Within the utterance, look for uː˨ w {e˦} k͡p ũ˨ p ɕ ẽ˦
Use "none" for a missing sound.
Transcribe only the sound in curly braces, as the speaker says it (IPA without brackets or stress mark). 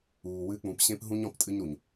ɨ˦